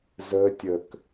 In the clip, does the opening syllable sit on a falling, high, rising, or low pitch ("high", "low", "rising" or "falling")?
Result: high